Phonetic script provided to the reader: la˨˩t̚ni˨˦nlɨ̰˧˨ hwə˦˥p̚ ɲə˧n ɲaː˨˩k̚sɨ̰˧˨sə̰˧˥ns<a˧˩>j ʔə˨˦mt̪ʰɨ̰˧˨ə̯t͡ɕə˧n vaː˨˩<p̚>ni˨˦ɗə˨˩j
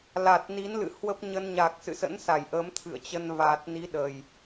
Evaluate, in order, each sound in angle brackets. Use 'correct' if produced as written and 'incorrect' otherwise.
correct, incorrect

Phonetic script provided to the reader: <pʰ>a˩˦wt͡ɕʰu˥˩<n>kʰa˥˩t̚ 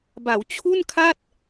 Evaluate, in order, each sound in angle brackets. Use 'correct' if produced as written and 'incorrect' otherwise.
incorrect, correct

